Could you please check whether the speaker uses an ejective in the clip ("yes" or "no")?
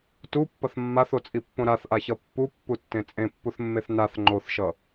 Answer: yes